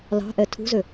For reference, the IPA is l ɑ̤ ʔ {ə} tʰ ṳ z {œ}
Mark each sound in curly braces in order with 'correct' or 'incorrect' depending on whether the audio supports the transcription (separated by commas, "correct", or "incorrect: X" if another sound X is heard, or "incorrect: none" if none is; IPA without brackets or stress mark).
incorrect: ɛ, incorrect: ø